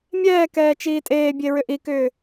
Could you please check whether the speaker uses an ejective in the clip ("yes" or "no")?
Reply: yes